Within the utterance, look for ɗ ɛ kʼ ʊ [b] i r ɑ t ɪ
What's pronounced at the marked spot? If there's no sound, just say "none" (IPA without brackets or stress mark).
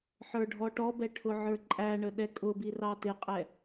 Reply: b